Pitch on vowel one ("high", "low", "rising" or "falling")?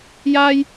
high